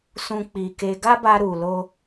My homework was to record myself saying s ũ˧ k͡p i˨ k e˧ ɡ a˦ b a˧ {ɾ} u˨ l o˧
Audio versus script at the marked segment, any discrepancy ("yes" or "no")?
no